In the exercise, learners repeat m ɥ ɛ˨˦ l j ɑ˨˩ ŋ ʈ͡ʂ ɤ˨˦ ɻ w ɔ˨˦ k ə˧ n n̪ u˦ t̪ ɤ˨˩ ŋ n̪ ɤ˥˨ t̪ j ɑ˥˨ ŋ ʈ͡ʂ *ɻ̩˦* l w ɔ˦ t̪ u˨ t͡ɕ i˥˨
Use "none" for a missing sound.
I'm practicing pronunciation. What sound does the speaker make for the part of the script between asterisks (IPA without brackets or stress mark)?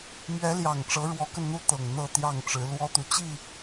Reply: ɻ̩˨˦